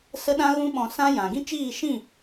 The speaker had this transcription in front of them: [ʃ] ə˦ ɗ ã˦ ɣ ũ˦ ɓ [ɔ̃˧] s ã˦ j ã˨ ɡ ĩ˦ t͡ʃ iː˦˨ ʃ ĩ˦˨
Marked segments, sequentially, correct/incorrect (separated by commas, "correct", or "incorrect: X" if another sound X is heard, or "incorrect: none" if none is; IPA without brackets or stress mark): incorrect: s, correct